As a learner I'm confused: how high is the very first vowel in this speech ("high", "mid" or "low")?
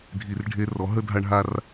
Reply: high